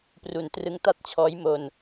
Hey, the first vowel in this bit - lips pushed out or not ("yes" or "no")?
yes